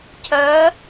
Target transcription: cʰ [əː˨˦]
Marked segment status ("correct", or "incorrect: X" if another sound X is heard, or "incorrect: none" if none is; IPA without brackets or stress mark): correct